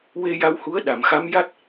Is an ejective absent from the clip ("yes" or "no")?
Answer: yes